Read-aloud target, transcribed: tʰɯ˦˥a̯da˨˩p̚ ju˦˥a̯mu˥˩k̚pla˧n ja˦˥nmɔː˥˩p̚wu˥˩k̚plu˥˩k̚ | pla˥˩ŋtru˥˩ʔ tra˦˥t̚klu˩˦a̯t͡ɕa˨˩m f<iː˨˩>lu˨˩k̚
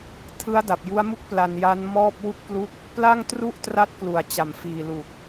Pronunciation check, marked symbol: correct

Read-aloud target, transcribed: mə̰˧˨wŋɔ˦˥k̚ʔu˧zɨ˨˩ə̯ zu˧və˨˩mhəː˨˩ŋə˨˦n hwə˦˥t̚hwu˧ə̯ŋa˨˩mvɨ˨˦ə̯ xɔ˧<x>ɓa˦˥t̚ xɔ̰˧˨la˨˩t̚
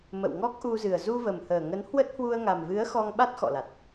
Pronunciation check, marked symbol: incorrect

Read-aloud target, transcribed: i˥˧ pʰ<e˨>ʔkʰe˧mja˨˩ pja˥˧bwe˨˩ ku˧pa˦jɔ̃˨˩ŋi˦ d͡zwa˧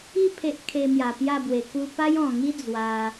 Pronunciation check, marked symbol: incorrect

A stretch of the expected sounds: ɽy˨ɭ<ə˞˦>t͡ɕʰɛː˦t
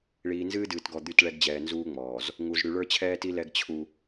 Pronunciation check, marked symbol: correct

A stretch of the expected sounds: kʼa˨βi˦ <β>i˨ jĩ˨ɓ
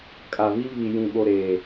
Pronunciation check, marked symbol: correct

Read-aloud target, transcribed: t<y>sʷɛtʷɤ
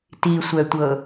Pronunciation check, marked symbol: incorrect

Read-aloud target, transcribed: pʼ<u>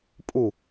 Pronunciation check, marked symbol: correct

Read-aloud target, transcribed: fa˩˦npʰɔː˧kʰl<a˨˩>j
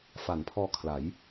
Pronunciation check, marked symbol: incorrect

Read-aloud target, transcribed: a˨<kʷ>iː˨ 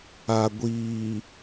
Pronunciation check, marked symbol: incorrect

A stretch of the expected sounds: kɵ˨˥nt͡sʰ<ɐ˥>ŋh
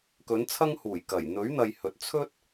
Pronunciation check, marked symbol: correct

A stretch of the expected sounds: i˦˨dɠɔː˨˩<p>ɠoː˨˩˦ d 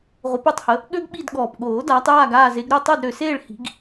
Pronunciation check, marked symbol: correct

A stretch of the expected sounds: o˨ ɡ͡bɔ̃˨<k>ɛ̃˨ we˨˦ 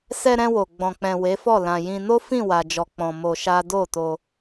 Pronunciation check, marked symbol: incorrect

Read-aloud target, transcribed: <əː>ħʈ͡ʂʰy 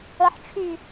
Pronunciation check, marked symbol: incorrect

